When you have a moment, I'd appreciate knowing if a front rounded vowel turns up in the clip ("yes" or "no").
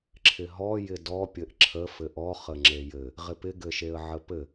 no